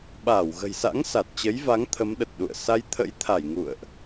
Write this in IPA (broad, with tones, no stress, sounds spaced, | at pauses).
ɓ aː˧˩ w ɣ ə̤˨˩ j s a̰˧˥ ŋ s a˨˩ t̚ t͡ɕ ə˨˦ j v a˨˦ ŋ t̪ʰ ə˨˦ m ɗ ə˨˩ t̚ ɗ ṵ˧˨ ə̯ s a˧ j t̪ʰ ə̰˧˥ j t̪ʰ a˧˩ j ŋ ṵ˧˨ ə̯ ʔ